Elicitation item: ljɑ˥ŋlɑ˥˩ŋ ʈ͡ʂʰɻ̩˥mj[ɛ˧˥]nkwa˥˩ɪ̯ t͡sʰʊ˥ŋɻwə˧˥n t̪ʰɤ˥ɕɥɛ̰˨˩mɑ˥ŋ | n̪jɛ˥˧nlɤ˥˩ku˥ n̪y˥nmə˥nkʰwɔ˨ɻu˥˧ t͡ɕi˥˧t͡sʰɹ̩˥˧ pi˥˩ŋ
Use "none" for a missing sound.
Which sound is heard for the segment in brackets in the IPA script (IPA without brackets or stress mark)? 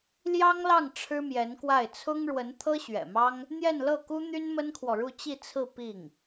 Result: ɛ˧˥